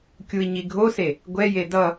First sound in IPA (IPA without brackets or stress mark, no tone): kʲ